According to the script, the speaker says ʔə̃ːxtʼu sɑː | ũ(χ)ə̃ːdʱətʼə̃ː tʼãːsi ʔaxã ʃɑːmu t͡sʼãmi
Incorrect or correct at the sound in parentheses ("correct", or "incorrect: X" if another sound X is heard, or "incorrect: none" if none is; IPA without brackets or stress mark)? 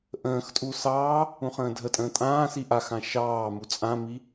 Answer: correct